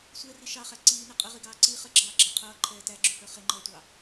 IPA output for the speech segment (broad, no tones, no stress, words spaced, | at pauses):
sʷɛri ʃɑχæ ǀiːnə qʼəʁiɡɑː ǀi χəɡ͡ǁɑːɡ͡ǁɑ qʰʌːǃʰɛː tæɡ͡ǁuhə˞ χɪŋ͡ǃʌːtʷɑ